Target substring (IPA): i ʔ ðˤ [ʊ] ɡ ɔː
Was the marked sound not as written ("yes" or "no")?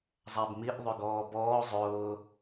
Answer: no